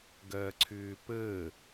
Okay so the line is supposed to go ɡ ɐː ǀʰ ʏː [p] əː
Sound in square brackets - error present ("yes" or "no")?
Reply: no